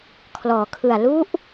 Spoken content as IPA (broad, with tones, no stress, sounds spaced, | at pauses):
kʰ l ɔː˩˦ kʰ ɯ˨˩ a̯ l u˦˥ ʔ